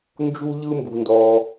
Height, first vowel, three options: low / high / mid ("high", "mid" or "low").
high